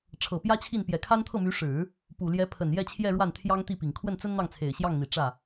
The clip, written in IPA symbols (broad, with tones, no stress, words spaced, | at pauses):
ʈ͡ʂʰɤ˨˩pjä˥t͡ɕʰi˥˩n pjɛ˨˩kʰa˥nt̪ʰɤ˥˩my˧˥ ʂɻ̩˨˩˦ | pu˨˩ ljɛ˧˥pʰə˨˩n jɛ˥˧t͡ɕʰjɛ˥˧ɻwa˥˩n t̪ʰjɑ˥ŋt̪i˥˩pi˨˩ŋ kʰwə˥˩nt͡sə˥n n̪ɑ˥˩ŋt͡sʰe˨˩ɪ̯ɕjɑ˥˩ŋn̪i˨˩ ʈ͡ʂä˥˩